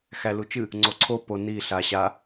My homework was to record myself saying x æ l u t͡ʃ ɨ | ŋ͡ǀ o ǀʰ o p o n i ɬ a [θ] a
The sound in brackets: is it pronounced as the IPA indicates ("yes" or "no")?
no